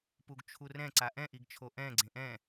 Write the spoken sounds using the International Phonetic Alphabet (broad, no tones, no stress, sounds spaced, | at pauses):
p u ɡ t͡ʃʰ u r ɛ̃ ǀ a ʔ ɛ̃ ʔ i ɡ t͡ʃʰ o ʔ ɛ̃ ɡ͡ǀ ẽ ʔ ɛ̃